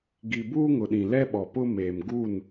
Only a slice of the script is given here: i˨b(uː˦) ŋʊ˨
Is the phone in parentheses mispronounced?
no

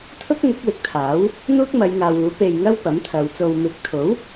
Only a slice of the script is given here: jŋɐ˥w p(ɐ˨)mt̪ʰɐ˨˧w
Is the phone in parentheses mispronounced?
yes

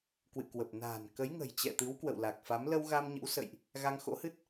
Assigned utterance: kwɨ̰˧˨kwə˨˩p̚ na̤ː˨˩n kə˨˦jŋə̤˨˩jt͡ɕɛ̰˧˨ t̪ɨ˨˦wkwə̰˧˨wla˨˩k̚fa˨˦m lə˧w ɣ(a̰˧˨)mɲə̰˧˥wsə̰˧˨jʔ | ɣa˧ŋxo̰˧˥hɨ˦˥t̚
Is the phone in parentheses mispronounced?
yes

